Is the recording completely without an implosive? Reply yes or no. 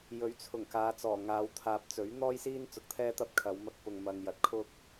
yes